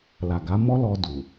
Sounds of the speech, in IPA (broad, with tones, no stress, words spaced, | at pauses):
la˨ɡa˨˦mɔ˦ lɔ˧ du˨